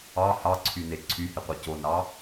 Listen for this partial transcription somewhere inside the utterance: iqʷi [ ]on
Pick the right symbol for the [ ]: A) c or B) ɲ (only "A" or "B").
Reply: A